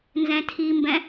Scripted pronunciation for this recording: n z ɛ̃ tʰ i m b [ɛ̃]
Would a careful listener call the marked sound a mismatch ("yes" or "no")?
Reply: no